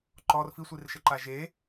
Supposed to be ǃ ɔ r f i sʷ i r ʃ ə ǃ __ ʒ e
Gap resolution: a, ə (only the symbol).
a